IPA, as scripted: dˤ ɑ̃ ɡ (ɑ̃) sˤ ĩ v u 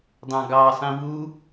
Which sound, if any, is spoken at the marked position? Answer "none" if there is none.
ɑ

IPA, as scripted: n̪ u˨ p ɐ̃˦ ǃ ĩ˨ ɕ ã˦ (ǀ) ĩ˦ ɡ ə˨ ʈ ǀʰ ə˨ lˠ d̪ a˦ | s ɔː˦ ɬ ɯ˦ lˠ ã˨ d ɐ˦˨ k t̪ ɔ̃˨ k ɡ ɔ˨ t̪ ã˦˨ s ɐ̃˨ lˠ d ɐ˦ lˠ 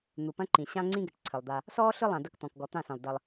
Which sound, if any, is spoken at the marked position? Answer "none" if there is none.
ŋ͡ǀ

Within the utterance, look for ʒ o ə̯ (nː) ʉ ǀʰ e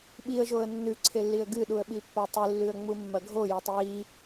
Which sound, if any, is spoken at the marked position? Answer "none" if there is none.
nː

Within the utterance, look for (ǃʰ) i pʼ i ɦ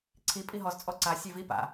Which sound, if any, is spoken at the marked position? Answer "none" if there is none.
ǀʰ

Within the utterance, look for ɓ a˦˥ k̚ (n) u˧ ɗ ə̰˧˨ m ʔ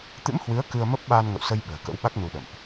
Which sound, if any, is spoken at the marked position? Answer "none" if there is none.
n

